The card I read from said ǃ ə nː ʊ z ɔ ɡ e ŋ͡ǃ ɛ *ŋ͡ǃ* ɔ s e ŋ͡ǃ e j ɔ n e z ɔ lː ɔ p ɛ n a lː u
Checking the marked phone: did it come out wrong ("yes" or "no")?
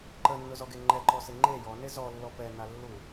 yes